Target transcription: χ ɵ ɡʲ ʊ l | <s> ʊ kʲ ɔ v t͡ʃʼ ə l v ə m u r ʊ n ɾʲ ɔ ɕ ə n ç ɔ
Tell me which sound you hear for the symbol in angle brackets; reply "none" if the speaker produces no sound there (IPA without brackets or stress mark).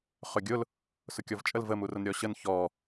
s